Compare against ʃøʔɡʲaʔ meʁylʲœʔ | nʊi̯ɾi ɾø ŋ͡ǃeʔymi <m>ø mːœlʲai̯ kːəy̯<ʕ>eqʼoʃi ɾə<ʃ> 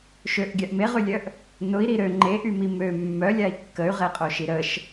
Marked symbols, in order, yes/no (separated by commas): yes, no, yes